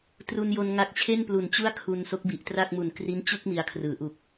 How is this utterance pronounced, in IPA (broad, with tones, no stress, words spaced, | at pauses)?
tru˧njo˧n ŋa˦˥k̚t͡ɕʰe˥˩nplu˨˩n t͡ɕu˥˩a̯kʰu˧n so˦˥k̚bi˨˩ʔtra˥˩k̚mu˨˩n kri˦˥n t͡ɕu˥˩k̚ mi˧a̯kʰrɯː˩˦ʔu˨˩k̚